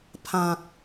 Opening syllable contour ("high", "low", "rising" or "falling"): low